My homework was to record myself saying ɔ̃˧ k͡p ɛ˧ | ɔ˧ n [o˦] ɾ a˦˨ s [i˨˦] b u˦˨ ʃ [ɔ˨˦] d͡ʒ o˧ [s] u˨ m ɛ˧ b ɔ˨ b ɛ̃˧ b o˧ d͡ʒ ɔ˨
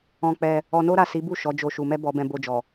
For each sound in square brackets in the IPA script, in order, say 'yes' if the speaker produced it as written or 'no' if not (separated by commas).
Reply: yes, yes, yes, no